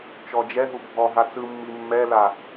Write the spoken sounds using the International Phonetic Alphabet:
t͡ʃ ɔ d͡ʒ ɛ ɦ u bʱ ɔ ɦ a t͡s ɯ mː i mː ɛ l a

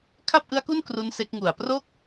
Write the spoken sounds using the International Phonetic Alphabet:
kʰ a˥˩ p̚ ʔ ɯ˦˥ a̯ k u˥˩ n k r u˦˥ n s e˦˥ k̚ ŋ u˨˩ a̯ p r o˥˩ k̚

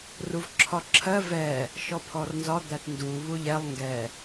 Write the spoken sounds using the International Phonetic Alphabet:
r u v ǁʰ ɒ ǁʰ ɜ v ɛ | ʃ ɔ pʰ ɔ r n z ɒ d̪ æ t n d u β u ʎ ɛ lˠ ŋ ɡ ɛ

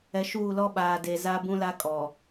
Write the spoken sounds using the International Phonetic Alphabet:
ɛ˨ ʃ uː˦˨ l ɔ˦ ɓ aː˨ d e˨ z a˦ b ũ˦ l a˦ kʼ ɔ˨

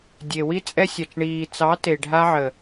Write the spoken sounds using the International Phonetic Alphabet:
dʲ e˨ w i˧ t͡sʼ ɛ˧ sʲ a˨ t͡ʃ ɳ iː˨ t͡s ɑ˨˦ t e˨ ɖʱ a˧ ʕ ə˨

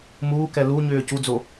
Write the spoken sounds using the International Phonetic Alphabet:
m uː k ɛ l u ɲ ʏː c u d͡z o

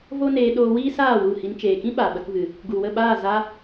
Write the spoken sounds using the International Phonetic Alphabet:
v o˦ n eː˧ ɗ oː˧ w iː˦ s aː˦˨ w u˦˨ h i˧ n t͡ʃ eː˨ k ĩ˦ ɓ a˨ ɓ ə˧ k v ɨ˨ | ɡ u˨ w ə˦˨ ɓ aː˦˨ z a˧

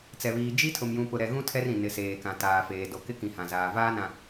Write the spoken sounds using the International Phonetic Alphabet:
t͡s ɛ˨ β iː˨ d͡ʒ i˦ tʰ ʊ˨ m j ũ˨ p ʊ˨ ɾ ɛ˨ ɣ ũ˦ tʰ ɛ˦ r ĩ˨ n ɪ˨ s eː˨ k ã˨ t aː˨ f eː˨ d o˨ k ɪ˦ k ĩ˨ h ã˨ z aː˨ v aː˦ n ã˨

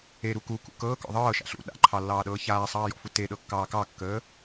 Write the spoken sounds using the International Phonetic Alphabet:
e ɾ u k u k ṵ k ɤː k ɔ̰ ðˤ ɤː ʃ a̰ ɬ ṵ ɗ a̰ ǃʰ ɑ lː ɑː ɗ ɤː ç aː sˤ ɑː j ɔ̰ f u t e ɗ ɤ kː ɑː k ɑ kː əː

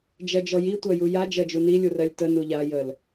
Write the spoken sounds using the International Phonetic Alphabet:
d͡ʒ ɜ d͡ʒ ɔ j i tʷ ɜ j u j a d͡ʒ ɜ d͡ʒ u n i lʲ u r ɜ lʲ t ə n u ʎ a j ə l

